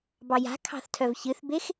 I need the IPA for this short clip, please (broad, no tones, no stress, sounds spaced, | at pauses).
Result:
b ɑ j a̤ kʰ ɑ̤ θ tʰ œ v ç ɨ θ b e x